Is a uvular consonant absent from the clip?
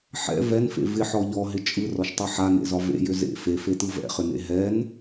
no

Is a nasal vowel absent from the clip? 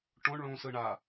no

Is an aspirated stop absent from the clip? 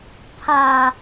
no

